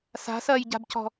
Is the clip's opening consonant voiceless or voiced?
voiceless